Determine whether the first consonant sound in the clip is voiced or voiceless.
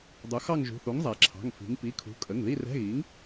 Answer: voiced